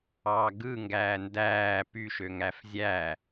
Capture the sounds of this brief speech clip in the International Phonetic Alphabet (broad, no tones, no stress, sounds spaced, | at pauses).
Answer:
ɑː ɡ ɯ ŋ ɡ æː n d æː p y ʃ ø ŋ æ f zʲ æ